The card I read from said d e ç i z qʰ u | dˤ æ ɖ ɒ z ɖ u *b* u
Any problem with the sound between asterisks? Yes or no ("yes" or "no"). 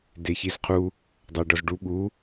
yes